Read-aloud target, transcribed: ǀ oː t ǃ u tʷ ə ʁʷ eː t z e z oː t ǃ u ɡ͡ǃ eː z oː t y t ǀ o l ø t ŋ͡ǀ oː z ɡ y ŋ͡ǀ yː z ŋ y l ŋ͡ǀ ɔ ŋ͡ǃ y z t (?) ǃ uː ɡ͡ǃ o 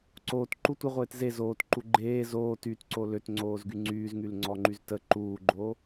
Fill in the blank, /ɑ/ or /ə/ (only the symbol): ə